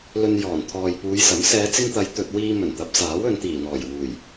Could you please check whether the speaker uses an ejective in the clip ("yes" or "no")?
no